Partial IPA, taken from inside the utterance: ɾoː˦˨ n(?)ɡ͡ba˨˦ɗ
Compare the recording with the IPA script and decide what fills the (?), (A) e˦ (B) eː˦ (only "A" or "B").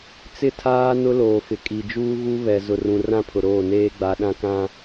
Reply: B